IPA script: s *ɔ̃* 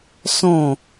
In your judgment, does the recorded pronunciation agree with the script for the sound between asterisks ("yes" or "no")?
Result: yes